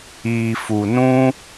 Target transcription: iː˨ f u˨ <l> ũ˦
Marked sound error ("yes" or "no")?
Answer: yes